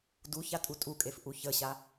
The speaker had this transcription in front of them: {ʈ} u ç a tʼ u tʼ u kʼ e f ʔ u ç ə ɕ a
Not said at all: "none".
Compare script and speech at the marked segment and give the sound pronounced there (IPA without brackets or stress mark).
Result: d